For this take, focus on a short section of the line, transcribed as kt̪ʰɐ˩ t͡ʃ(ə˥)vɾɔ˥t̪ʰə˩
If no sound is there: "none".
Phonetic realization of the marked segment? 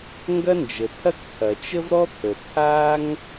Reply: ə˥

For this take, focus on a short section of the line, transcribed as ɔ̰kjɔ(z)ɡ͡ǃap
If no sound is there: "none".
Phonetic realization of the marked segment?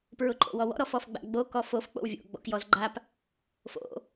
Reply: z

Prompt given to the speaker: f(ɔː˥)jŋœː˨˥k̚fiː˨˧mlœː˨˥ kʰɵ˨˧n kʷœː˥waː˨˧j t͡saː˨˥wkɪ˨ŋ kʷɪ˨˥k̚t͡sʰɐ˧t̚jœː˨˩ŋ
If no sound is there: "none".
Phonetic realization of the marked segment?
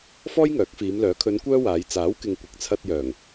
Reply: ɔː˥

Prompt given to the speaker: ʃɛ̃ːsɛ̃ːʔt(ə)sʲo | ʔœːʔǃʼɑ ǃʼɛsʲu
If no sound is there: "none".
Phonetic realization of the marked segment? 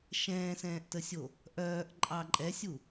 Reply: ə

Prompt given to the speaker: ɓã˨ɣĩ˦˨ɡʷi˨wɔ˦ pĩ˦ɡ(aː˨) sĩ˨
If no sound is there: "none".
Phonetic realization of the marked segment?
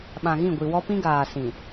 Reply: aː˨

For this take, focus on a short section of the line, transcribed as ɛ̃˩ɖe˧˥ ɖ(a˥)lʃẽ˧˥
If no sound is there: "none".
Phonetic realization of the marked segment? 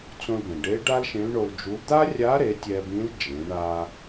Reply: a˥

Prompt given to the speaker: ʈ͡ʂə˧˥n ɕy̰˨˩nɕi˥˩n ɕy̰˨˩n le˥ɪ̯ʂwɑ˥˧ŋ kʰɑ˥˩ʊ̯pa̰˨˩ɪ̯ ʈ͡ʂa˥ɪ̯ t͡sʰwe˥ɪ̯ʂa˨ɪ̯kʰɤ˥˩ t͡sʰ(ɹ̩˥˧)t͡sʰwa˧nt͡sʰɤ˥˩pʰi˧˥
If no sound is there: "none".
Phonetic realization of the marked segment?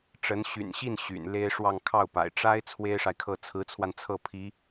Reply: ɹ̩˧˥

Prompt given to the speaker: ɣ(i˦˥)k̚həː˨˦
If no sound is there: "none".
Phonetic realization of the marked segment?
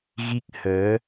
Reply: i˦˥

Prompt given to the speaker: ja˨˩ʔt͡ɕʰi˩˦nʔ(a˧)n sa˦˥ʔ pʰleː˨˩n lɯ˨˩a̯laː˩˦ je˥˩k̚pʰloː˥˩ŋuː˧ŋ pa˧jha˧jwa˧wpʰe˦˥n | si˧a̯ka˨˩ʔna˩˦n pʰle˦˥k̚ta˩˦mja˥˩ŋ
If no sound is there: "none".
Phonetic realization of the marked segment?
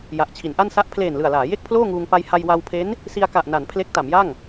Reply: a˥˩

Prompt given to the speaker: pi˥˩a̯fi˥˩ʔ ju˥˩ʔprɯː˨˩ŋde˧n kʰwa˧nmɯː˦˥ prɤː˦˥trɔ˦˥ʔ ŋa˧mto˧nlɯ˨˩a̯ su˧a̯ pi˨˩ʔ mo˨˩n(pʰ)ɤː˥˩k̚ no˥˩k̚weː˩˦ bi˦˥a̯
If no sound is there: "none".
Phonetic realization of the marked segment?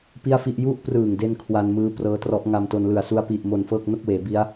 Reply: f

